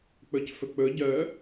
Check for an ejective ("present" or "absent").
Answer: absent